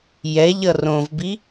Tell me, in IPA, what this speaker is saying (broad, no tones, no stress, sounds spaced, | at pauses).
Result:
j ɛ ʎ ʌ r õ v b i